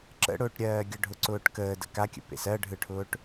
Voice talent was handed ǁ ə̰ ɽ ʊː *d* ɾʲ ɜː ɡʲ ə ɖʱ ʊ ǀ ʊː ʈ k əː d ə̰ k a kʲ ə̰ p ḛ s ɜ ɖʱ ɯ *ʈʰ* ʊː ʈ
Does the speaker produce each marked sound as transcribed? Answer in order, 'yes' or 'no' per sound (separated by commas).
no, yes